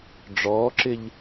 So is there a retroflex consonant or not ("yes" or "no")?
yes